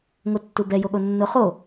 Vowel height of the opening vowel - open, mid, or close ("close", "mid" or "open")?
mid